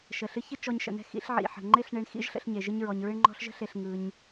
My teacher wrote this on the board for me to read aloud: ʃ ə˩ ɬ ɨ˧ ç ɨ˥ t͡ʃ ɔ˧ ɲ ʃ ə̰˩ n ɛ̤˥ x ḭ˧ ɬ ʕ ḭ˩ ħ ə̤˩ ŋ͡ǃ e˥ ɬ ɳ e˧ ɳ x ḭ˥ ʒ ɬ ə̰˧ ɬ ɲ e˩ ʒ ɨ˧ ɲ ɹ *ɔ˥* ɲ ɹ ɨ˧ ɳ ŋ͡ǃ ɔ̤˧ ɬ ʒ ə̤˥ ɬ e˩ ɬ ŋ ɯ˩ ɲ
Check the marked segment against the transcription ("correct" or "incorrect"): incorrect